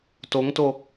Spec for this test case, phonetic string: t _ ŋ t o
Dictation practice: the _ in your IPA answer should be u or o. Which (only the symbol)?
o